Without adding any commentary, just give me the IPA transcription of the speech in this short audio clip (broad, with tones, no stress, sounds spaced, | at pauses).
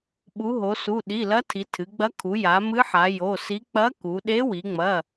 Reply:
ɓ u˩˧ ɦ o˩˧ s u˩˧˩ ɗ i˩˧˩ l ɐ˧˥ tʰ i˩˧ tʰ ɨ˩˧ ɡ͡b ɐ˧˥ kʰ u˩˧ j a˩˧ m ɨ˧˥ ħ a˩˧ j o˩˧˩ s i˧˥ k͡p ɐ˧˥ k u˩˧ ɗ e˧˥ w i˩˧ ŋ͡m ɐ˩˧˩